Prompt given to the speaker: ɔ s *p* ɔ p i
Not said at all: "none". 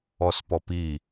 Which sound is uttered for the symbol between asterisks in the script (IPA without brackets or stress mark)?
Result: p